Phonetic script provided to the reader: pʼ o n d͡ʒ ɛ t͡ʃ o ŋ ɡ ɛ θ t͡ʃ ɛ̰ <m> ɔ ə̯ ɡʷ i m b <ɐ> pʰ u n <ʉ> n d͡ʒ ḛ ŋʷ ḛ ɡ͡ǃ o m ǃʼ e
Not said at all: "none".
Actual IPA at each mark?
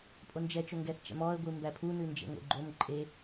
m, æ, ʉ

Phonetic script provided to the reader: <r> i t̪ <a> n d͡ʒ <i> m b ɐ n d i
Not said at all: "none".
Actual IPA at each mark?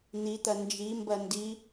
n̪, ɐ, i

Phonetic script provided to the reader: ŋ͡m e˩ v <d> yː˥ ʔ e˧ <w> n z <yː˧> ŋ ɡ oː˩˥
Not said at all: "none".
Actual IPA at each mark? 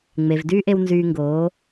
d, w, yː˧

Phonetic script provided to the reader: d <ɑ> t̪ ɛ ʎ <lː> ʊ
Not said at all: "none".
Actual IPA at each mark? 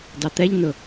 ɑ, n

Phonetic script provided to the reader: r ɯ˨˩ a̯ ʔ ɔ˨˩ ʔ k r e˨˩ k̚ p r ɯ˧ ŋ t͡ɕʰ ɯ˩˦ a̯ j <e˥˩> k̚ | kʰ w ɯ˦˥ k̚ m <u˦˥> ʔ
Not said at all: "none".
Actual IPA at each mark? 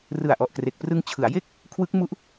e˥˩, u˦˥

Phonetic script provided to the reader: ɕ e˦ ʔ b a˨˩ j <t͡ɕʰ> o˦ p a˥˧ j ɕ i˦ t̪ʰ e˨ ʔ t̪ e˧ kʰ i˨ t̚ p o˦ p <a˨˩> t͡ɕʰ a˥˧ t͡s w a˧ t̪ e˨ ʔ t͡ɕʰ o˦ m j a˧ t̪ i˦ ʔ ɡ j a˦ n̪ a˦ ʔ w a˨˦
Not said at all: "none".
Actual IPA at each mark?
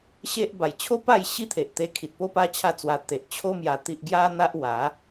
t͡ɕʰ, a˦

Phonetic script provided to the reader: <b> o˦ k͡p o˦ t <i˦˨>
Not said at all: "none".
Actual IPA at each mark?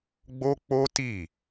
ɡ͡b, i˦˨

